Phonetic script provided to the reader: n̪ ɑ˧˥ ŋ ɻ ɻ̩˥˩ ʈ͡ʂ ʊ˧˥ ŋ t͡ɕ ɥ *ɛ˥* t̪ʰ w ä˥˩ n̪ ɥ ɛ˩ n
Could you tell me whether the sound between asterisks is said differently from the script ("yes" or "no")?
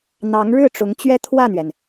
no